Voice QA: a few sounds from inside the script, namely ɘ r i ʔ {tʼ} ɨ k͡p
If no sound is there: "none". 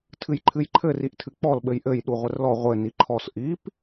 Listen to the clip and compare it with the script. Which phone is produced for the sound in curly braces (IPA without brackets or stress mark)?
tʰ